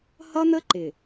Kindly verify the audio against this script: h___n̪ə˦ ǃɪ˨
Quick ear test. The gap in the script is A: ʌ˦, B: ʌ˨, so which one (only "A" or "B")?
A